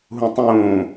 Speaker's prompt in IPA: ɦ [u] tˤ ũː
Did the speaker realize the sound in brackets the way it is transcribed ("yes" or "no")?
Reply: no